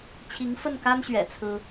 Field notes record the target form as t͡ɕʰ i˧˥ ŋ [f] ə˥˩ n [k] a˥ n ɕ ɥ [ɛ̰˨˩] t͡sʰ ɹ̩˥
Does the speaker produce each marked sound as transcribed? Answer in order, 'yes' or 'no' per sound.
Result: yes, yes, yes

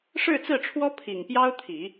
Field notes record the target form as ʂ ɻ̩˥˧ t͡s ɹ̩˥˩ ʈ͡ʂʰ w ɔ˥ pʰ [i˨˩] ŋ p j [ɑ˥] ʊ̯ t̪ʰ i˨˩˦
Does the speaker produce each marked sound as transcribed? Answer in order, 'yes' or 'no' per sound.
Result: yes, yes

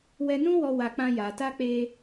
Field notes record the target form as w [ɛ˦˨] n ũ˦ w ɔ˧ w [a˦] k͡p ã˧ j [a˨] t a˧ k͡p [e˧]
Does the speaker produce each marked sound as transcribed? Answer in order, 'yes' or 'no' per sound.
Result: no, no, yes, yes

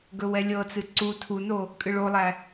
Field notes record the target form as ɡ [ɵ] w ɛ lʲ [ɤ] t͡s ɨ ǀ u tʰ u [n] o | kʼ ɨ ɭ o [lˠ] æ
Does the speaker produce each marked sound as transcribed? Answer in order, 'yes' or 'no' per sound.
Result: yes, yes, yes, yes

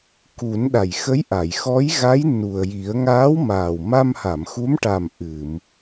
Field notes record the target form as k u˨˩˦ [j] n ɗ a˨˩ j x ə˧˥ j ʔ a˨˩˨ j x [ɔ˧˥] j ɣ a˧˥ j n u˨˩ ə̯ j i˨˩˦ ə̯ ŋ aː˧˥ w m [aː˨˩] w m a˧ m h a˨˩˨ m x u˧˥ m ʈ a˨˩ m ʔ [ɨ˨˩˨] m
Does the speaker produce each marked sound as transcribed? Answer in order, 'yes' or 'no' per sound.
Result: no, yes, yes, yes

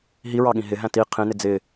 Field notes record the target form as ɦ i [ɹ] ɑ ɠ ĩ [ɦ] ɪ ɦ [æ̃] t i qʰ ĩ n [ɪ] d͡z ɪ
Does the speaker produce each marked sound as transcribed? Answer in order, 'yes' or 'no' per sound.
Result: yes, yes, yes, yes

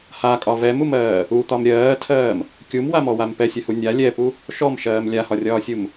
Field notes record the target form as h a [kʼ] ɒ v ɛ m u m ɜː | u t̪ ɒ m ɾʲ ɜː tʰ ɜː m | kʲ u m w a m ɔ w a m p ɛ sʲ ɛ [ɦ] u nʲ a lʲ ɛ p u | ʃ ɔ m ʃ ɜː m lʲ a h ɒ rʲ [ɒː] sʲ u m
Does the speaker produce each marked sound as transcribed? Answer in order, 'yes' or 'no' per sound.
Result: yes, no, yes

